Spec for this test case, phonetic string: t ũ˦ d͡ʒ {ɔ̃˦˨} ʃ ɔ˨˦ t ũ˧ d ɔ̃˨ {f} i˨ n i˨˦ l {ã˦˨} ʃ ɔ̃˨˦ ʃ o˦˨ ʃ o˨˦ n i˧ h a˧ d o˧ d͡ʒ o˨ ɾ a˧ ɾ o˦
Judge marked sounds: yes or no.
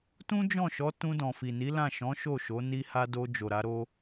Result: yes, yes, yes

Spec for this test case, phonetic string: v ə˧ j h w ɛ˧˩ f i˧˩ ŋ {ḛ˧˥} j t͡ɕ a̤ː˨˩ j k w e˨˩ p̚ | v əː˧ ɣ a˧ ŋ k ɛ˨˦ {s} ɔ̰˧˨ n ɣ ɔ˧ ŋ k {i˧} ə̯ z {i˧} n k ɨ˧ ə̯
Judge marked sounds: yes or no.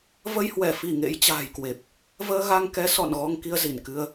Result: yes, yes, yes, no

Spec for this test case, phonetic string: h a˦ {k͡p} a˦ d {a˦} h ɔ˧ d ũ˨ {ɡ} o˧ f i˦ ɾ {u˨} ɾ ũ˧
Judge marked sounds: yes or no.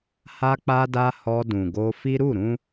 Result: yes, yes, yes, no

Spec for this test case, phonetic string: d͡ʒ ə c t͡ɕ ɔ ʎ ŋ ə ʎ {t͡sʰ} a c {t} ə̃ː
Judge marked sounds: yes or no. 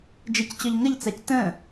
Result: no, yes

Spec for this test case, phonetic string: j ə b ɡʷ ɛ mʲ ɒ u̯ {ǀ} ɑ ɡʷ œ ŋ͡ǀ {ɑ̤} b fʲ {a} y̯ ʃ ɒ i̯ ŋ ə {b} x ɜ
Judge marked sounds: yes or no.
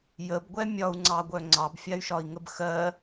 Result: no, no, yes, yes

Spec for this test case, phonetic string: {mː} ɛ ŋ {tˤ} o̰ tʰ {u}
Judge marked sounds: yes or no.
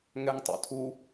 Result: no, yes, yes

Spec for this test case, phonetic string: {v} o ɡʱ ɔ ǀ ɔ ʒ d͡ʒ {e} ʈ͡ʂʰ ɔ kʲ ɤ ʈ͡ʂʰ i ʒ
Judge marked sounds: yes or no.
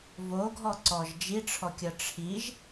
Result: yes, no

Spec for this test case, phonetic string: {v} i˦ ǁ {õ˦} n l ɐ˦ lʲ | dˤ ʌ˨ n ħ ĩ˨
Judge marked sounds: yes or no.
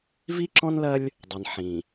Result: yes, no

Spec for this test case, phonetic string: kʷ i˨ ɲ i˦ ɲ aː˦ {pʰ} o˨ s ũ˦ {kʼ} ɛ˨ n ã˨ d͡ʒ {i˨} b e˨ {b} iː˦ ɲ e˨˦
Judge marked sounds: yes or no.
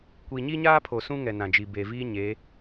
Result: yes, no, yes, no

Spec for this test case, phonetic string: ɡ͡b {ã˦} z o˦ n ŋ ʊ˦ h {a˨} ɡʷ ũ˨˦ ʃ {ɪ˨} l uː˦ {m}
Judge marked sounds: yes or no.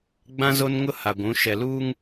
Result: yes, yes, no, no

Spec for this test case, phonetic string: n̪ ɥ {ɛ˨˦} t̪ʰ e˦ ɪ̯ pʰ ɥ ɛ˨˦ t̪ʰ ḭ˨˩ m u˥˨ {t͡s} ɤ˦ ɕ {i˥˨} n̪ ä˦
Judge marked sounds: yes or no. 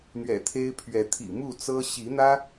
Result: no, yes, no

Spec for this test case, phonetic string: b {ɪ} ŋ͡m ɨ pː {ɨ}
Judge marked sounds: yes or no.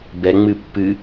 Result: no, yes

